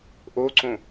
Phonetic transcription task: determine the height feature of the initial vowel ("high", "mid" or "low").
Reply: mid